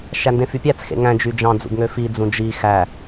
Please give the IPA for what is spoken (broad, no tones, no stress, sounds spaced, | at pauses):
ʃ æ n d ẽ f y pʲ æ t͡s x ḛ ŋ æ̃ d͡ʒ y d͡ʒ ɑ̃ d͡z ṵ ɡ ŋ ø f i d͡z ũ d͡ʒ i x æ